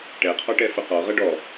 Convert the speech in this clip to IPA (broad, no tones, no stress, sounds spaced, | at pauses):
ʈ ɛ qʰ ɔ ʈ ɛ f ə q ɔ ʁ ʌ ɖ ɔ